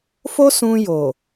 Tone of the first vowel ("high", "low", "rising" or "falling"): high